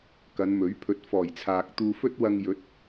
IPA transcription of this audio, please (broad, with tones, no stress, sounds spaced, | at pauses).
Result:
k ɐ˨˧ n m ɵ˨˥ ɥ pʰ ɵ˨˥ t̚ f ɔː˨˩ j t͡sʰ aː˨ k̚ t̪ uː˧ f ɵ˥ t̚ w ɐ˧ ŋ j ɵ˨˥ t̚